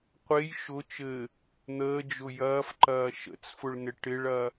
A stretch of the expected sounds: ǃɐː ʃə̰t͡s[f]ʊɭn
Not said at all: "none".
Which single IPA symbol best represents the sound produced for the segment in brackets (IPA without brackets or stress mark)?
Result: f